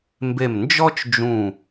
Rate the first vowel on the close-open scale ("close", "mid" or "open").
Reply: mid